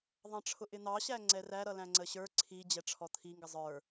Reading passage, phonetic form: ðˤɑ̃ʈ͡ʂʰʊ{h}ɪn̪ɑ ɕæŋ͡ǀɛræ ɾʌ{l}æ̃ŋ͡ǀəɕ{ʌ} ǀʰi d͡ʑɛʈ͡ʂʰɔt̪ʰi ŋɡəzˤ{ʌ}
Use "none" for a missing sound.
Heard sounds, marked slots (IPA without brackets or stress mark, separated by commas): ʔ, l, ə˞, ə˞